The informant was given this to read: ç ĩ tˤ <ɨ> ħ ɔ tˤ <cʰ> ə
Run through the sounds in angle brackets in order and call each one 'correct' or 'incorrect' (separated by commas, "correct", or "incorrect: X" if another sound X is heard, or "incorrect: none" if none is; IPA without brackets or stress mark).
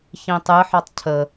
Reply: correct, correct